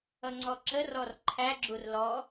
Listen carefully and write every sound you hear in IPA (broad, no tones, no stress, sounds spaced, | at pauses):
ʌ ŋ͡ǀ ɔ ǁ ə r ɔ r ǃʰ æ ɡ͡ǁ u r l ɔ